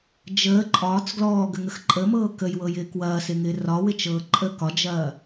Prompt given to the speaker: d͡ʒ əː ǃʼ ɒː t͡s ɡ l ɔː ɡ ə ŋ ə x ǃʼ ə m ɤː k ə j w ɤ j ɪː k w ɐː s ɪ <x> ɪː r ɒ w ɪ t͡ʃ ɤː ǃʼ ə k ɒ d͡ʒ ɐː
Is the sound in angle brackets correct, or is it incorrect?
incorrect